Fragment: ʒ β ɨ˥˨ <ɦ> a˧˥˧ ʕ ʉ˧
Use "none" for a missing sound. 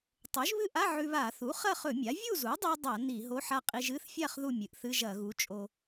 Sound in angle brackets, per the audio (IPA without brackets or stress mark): ʔ